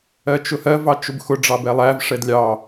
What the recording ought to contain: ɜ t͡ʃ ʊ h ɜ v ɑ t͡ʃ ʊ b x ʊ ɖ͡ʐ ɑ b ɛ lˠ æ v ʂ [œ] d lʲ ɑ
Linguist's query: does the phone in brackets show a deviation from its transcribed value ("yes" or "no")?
yes